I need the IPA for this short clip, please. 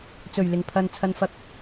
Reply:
t͡s ɵ˨˩ ɥ l ɪ˨˩ ŋ pʰ ɐ˨ n t͡sʰ ɐ˧ n f ɐ˧ k̚

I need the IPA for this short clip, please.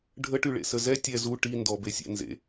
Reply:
ɖʱ ə ʈ y ɭ ḛ s ə z ɛ tʲ ɛ z u ʈ i n d ɔ b e sʲ ḛ n z ḛ

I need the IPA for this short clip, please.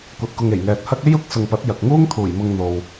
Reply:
kʷ ɐ˨ t̚ k ʊ˨ ŋ e˨˩ j ŋ ɛː˨ t̚ h ɐ˥ k̚ e˥ j ʊ˨˥ k̚ s ʊ˨ ŋ p ɐ˨˥ t̚ j ɐ˨ k̚ ŋ uː˥ ŋ t̪ʰ uː˨˩ j m ʊ˧ ŋ n̪ o˨ w

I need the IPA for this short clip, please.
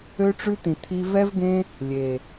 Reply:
ø˧ ʈ͡ʂ ʉ˧ t̪ ĩ˨ t̪ʰ i˧ v ɛ˧ v ɡ ẽ˧ | lʲ e˨

